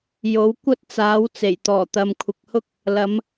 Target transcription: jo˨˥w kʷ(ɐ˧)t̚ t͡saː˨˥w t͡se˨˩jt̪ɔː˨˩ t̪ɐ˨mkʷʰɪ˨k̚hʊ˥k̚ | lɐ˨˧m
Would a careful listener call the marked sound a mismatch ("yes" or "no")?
yes